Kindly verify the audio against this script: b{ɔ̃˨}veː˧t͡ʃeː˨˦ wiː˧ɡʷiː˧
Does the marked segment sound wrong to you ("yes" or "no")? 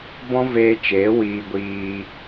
yes